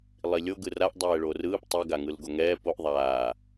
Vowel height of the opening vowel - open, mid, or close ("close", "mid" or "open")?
close